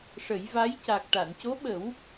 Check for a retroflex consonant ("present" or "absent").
present